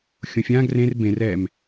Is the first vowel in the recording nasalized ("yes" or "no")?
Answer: yes